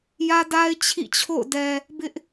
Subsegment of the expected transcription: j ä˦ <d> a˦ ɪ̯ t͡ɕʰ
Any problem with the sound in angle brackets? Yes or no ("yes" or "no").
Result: no